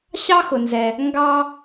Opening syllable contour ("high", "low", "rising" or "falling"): high